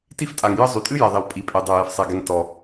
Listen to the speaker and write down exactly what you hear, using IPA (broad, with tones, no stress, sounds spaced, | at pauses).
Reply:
t i˥ f tʼ a˩ ŋ j ə˥ zˤ y˩ tʼ ɨ˥ j ɛ˩ ðˤ i˩ w pʼ i˩ pʼ e˩ dˤ ɛ˩ j ɛ˩ f sˤ ɛ˩ ɡ ɛ˩ ŋ t ɔ˩